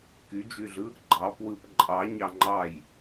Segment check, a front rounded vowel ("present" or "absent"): present